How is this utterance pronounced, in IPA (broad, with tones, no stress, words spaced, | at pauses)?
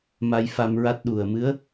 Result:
ma˧jfa˧mɹa˦˥t̚ ɗu˨˩ə̯mɨ˧˥ə̯